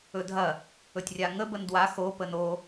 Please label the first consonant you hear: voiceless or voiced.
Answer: voiced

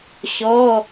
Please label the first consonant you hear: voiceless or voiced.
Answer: voiceless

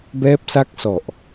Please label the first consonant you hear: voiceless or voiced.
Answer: voiced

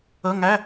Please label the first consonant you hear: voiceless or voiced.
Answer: voiced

